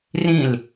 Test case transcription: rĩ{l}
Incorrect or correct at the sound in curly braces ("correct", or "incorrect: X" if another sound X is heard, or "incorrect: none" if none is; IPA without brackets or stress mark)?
correct